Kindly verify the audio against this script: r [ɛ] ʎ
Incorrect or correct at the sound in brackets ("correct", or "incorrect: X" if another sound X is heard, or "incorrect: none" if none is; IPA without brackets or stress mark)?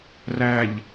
incorrect: æ